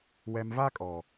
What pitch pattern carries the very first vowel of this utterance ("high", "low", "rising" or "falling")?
low